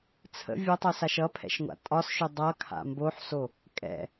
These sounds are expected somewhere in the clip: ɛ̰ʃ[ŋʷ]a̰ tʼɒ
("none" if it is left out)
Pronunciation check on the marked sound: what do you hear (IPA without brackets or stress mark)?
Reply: ŋʷ